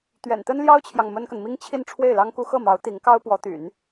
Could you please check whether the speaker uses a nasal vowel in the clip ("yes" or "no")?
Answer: no